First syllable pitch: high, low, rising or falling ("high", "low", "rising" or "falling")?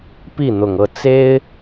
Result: falling